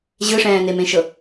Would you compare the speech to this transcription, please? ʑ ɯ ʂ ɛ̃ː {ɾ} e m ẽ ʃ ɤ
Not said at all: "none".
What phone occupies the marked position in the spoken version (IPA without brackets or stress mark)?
n̪